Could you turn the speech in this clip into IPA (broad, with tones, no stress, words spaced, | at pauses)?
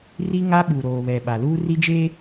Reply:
ri˦ŋa˦ ɓu˨ɾoː˨βɛ˨ ɓa˨luː˦ri˦d͡ʒeː˦